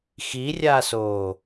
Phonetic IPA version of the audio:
x i rʲ a s oː

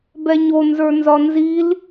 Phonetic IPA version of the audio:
b ɛ ɲ o n z ə˞ n z ɒ n z i l

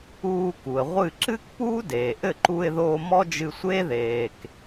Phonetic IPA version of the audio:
uː˧ k u˩ ə̯ ʁʷ ɨ˥˩ ǁ ɨ˥ k p uː˥ d eː˩ ʔ ɘ˥˩ ǃ u˧ ɪ̯ ð oː˧ m ɔ˥ d͡ʒ ɨ˧ sʷ eː˥ ð eː˩ k

